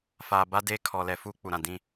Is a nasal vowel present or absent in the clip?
present